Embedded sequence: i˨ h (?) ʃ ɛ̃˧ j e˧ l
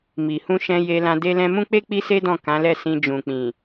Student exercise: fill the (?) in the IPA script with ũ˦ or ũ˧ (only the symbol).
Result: ũ˧